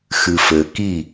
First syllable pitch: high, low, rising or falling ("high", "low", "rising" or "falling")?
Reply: low